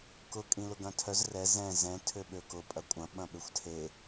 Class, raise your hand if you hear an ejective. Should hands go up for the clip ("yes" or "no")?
yes